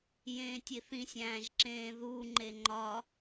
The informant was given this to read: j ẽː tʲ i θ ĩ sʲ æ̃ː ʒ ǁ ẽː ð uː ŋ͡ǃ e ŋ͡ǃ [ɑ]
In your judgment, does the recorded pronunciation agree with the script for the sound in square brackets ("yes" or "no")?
no